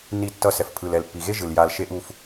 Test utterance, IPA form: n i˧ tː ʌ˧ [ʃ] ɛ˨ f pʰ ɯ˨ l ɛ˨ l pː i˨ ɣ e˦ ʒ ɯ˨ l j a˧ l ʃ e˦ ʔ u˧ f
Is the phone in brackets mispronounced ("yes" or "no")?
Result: yes